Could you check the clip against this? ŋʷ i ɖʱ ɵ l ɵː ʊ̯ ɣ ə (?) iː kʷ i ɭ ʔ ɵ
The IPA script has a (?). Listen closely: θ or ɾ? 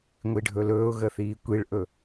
θ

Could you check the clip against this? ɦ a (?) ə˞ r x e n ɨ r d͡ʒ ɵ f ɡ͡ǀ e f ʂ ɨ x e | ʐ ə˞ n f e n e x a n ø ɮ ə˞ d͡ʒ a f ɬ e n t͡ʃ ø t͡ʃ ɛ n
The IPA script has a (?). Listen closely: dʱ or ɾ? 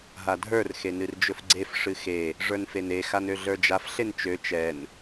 dʱ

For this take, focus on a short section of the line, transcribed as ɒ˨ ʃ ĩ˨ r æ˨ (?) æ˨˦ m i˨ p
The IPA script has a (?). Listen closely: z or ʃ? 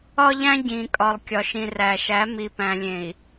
ʃ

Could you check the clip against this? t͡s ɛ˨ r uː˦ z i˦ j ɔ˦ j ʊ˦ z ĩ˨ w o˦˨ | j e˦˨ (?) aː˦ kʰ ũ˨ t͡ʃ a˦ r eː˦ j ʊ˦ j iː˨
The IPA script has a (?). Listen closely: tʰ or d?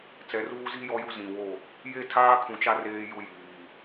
tʰ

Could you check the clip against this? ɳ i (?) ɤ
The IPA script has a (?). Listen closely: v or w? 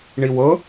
w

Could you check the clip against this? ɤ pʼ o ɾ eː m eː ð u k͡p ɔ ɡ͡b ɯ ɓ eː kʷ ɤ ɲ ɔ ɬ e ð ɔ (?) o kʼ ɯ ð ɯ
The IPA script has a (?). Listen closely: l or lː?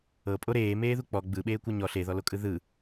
l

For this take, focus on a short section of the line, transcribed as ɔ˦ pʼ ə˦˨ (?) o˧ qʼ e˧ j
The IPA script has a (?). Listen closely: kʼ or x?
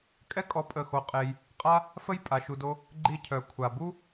x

